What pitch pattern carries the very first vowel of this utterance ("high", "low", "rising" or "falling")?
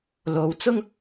low